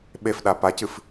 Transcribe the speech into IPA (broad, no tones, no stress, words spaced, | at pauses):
ɓefɗa pacɨf